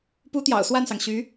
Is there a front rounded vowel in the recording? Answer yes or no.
yes